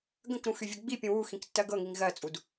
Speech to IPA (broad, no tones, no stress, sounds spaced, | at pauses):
ɡ ə̃ k ɾ ũ x y vʲ ə ɡ͡b i pʲ ũ w u x ĩ k tː ɜ ɡ ɤ ŋ i ŋ ɣ ɜ t͡sʼ u d